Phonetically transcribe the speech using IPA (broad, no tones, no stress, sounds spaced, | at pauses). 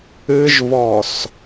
ɨ ʒ v ɔ s